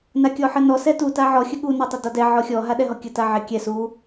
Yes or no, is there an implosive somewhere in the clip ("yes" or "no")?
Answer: yes